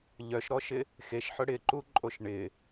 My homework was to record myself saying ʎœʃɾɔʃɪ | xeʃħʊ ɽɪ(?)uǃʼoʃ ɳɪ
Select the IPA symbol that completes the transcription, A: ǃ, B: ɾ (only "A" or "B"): A